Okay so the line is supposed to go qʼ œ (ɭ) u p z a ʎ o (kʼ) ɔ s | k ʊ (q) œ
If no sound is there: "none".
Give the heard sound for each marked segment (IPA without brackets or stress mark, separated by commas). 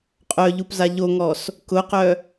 ʎ, ŋ, q